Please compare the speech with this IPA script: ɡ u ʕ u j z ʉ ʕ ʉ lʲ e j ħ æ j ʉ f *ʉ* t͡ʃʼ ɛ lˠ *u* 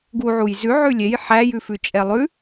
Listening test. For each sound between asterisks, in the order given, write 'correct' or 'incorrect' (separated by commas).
correct, incorrect